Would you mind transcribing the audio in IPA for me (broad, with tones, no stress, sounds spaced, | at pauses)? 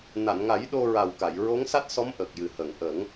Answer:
n a˨˩˨ n ŋ a˨˩˦ j ɗ o˧ ɹ a˨˩ w k a˨˩˨ j ɹ o˧˥ ŋ s a˦˥ t̚ s ɔ˧˥ m ʔ ə˨˩ k̚ j ɨ˨˩ h ə˨˩˨ ŋ ʔ ə˨˩˦ ŋ